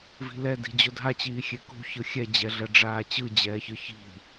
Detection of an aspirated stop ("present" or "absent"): absent